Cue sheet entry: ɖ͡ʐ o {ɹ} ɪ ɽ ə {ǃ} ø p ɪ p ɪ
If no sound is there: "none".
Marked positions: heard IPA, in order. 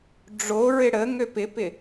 ɹ, ŋ

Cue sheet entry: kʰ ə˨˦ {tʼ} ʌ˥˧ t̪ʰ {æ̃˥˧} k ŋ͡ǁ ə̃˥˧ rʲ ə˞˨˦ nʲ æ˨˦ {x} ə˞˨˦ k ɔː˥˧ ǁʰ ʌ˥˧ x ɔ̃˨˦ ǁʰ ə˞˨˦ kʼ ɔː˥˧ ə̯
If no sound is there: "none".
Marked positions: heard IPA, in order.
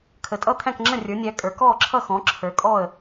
tʼ, æ̃˥˧, kʼ

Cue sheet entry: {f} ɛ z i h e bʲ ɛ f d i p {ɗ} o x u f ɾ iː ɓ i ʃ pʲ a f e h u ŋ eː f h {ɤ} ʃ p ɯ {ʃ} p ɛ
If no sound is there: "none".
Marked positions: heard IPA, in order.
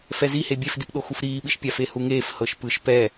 f, ɗ, ɤ, ʃ

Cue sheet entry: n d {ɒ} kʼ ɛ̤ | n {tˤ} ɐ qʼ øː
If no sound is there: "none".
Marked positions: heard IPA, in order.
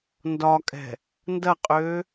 ɒ, d

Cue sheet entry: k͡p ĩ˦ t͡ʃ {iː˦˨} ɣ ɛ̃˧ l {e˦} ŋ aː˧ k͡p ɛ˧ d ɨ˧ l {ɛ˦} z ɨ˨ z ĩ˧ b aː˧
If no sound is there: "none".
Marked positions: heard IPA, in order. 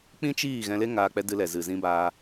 iː˦˨, e˦, ɛ˨

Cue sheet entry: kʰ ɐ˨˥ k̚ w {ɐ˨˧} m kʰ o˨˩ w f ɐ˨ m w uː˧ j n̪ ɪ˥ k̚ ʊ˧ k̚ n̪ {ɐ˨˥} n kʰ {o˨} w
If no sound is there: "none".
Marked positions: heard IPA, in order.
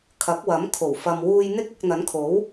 ɐ˨˥, ɐ˨˥, o˨˥

